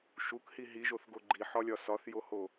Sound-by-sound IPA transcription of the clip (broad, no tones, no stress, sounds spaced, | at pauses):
ʃ u k h i ɦ i ʒ o θ ɡ o ɡ͡ǃ i ħ ɒ lʲ ɒ s ɒ θ j o h o